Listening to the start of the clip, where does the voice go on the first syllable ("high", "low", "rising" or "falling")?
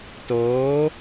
rising